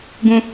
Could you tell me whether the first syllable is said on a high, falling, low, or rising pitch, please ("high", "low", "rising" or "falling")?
high